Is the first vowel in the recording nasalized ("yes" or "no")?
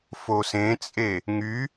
no